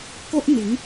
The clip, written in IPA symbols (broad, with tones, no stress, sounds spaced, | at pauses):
k o˦ ʔ n̪ i˨˦ ŋ